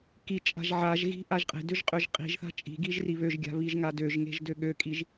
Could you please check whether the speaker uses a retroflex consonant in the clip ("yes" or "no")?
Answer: no